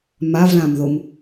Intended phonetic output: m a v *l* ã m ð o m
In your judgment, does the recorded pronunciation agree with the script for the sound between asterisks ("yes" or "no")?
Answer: yes